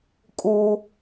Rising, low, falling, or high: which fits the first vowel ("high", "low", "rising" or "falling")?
low